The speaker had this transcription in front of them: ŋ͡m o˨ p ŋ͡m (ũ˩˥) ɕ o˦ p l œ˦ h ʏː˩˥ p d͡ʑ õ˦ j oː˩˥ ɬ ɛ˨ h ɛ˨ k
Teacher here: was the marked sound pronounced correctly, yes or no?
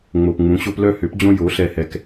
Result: yes